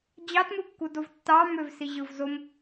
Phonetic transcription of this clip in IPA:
d͡ʑɑtmɯkːudov tːɑ møvsiʑɯvzom

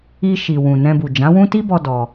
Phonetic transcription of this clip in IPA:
i˧ʃi˨ wũ˨nɛ̃˧bu˨ d͡ʒã˨˦wũ˦ ti˦bɔ˧ dɔ˧

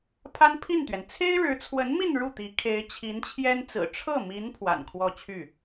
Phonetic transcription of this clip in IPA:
pʰa˥npʰi˥˩nt̪ɥɛ˩n t͡sʰe˥ɪ̯ɻɻ̩˧˥t͡sʰwə˧˥nmi˥˧n ɻu˥˩t̪i˧˥ kʰe˧˥ɪ̯t͡ɕʰi˧˥nt͡ɕʰjɛ˥nt͡sɹ̩˨˩ ʈ͡ʂʰɤ˥˩mi˧˥n pʰwa̰˨˩nkʰwɔ˥˧t͡ɕʰy˥˩

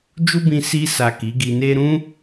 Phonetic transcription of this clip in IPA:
d͡ʒu˦bĩ˧ si˧sa˨ ki˨˦ɡi˧ne˦ ɾũ˦

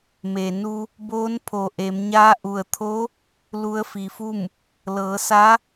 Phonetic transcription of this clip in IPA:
me˩nu˧ | boː˧˥npʰo˩ʔe˩˧mɲaː˧˥ ʔu˩ə̯t̪ʰo˧˥ | lu˧˥ə̯fi˩˧fu˥˨m | lɤː˩˧sa˧˥

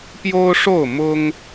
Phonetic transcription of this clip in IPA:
pjo˦ʊ̯ʂo˥˨ʊ̯ mʊ˦ŋ

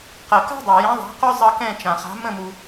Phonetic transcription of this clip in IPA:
qɜ˩ka̤˥dˤa˩ jɛ̃˨˦ðˤa̤˨˦ qʊ˥zˤʌ˦˨kɛ̃˦˨ t͡ʃã˩χa̤˨˦ mə̃˦˨mu˩

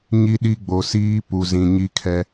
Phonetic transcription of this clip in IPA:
ɲi˦ɗi˦ ɡ͡bo˨siː˦ pu˨zĩ˨ɲi˦kʰɛ˦

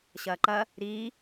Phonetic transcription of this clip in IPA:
ɕɐːǃɐ | ɾiː

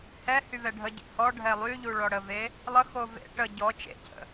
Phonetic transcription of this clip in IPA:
hɛhyvɛ ɖʱəɟḛ hɔɖʱɛ lˠyʎuɭɔ ɽəve | lˠəxo vḛ ʈə ɟɔ t͡ʃḛcʰə̰

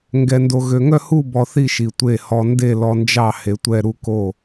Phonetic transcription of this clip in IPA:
ŋɡɛ˧ndo˧ɣø˧ ŋœ˥˧hu˥˧ bɔ˧θi˥˧ ʃi˧tʷe˥˧ hɔ˧nde˥˧lɔ˧nd͡ʒɑ˥˧ he˧tʷɛ˥˧ɾu˥˧ ko˥˧

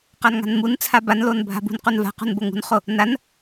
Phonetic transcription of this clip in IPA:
qanŋa̤nmunt͡sʰa banlon bʱa̤bṳnqun va̤qṳn boŋṳnχo | nan

